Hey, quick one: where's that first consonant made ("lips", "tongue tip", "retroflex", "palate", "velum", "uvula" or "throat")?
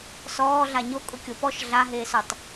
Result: tongue tip